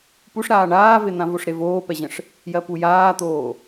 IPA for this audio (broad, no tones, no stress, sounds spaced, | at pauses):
p u ʂ ɾ aː ɳ aː v e n̪ ã v o ʂ ɾ e v oː p ɛ ʑ ə̃ ʂ | j ɜ p u j aː t̪ oː